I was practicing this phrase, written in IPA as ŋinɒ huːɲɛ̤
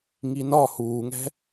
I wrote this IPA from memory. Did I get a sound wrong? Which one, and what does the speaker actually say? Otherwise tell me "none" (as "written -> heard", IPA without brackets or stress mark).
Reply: ɲ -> ŋ